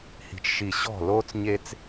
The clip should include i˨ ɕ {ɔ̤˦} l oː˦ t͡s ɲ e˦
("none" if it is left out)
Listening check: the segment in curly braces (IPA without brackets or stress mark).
ɔ̤˦˨